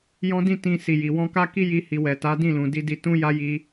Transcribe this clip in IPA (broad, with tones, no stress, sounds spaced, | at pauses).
j ɔ̃˦ d ĩ˦˨ t ĩ˧ s i˨ j i˨ w ɔ̃˧ k a˦ k i˦ j i˧ h i˨ w ɛ˨ t a˨˦ d ĩ˦˨ l ũ˨ d i˧ d i˧ t ũ˦ j a˦ j i˧